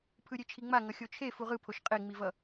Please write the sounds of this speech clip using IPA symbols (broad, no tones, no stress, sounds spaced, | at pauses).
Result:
pʰ ɯ ɾʲ e t͡ʃʰ i ŋ͡m a ŋ ʌ xʲ o t͡ʃʰ e f u ʁ ɯ pʰ o ʃ qʼ e ŋ͡m i v ʌ